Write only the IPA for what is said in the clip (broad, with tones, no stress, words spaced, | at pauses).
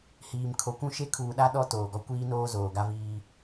hiː˨mkʰo˨kʷũ˦ʃe˦ kʰuː˨ɗa˦ ɗɔ˦ toː˨ɡɔ˦ kʷiː˦noː˦ zoː˨ɡa˦viː˦